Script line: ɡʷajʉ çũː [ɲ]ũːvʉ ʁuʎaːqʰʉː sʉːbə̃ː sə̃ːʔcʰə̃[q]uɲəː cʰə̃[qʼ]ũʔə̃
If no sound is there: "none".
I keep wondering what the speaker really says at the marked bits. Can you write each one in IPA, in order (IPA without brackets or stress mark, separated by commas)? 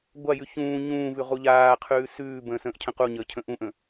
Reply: ɲ, q, ʔ